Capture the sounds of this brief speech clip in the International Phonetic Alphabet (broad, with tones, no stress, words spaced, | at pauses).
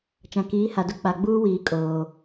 t͡ʃã˨kiː˨˦ha˨dʊ˦ k͡pa˨ɡ͡buː˦ wiː˨ kʼoː˨